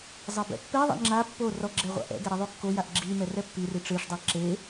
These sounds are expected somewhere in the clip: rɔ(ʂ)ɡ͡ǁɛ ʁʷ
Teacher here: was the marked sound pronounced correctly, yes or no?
no